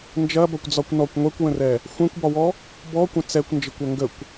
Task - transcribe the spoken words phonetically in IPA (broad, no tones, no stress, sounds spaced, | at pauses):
n d͡ʒ ɐ b ɐ kʷ d͡z ɒ kʷ n ɔ kʷ ŋʷ ɛ kʷ w ə̃ r ɛ | xʷ ɛ̃ kʷ b ɒ w ɔ | b ɔ kʷ ə̃ t͡s ɛ kʷ n d͡ʒ ə kʷ ɐ ŋ ɡ ə kʷ